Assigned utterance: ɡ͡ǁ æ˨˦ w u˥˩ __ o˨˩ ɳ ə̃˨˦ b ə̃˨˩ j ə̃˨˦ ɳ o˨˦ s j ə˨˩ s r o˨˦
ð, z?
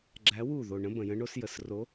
ð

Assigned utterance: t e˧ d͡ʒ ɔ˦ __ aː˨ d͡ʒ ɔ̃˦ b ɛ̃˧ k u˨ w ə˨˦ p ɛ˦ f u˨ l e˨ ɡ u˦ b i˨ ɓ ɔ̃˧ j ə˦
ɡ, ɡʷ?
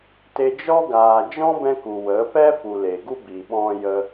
ɡ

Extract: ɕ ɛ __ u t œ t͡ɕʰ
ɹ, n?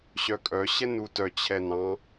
n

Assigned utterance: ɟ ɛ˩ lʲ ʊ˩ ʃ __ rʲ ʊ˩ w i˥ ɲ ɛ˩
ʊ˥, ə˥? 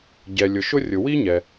ʊ˥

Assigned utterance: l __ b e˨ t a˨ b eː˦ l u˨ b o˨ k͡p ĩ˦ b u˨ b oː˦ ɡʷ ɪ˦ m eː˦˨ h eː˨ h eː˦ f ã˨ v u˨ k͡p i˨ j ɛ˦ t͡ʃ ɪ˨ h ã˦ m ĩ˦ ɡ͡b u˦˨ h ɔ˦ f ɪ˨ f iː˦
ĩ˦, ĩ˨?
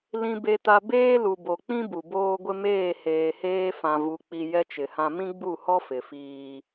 ĩ˨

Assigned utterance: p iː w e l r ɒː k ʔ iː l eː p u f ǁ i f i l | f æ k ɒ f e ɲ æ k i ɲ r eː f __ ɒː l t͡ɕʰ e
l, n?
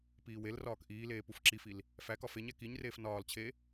n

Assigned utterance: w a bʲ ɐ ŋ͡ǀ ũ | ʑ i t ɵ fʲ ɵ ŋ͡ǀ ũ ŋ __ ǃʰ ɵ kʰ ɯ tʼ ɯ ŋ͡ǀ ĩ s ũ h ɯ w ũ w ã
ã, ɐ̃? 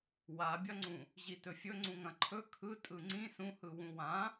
ɐ̃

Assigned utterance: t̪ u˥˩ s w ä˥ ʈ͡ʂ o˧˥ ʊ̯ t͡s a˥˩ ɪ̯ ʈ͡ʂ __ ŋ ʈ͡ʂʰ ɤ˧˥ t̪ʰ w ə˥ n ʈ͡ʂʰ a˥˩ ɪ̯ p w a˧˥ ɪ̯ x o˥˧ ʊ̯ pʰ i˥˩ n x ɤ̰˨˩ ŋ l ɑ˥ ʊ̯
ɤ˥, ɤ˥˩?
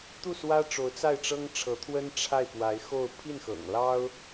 ɤ˥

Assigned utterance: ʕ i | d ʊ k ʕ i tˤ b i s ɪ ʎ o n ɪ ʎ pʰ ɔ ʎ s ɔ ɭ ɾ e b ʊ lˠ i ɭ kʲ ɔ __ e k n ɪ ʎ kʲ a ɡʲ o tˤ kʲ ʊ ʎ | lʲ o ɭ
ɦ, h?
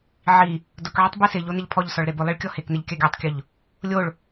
h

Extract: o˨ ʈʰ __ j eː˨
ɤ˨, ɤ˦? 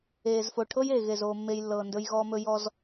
ɤ˦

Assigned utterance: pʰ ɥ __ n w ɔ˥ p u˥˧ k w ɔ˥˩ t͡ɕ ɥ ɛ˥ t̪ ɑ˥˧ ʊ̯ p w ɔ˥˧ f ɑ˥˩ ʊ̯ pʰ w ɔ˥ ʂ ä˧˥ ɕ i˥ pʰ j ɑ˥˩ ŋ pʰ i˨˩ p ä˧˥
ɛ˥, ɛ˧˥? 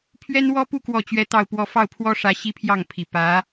ɛ˥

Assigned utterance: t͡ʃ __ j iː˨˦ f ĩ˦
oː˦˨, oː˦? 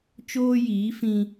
oː˦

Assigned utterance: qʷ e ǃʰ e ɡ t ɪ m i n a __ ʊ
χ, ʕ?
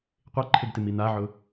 ʕ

